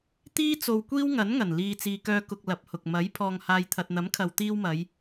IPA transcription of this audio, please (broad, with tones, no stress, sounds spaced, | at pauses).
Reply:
t̪ iː˥ t͡s o˧ w kʷ iː˥ w ŋ ɐ˨˥ n ŋ ɐ˨˩ n l iː˨ t͡s iː˨ k œː˧ k ʊ˧ k̚ l ɐ˨˥ p̚ h ʊ˨ k̚ m ɐ˨˥ j pʰ ɔː˨ ŋ h aː˨ j t̪ʰ ɐ˨ t̚ n̪ ɐ˨˥ m kʰ ɐ˨ w t̪ iː˧ w m ɐ˨˧ j